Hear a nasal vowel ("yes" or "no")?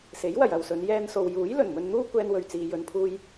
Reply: no